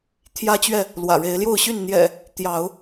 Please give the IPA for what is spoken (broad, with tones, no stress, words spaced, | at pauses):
t̪ʰjä˦t͡ɕɥɛ˥˨ | lwä̰˨˩ɻe˨˦ɪ̯ljo˥˨ʊ̯ɕy˥˨n n̪jɛ̰˨˩ | t̪jɑ˨˦ʊ̯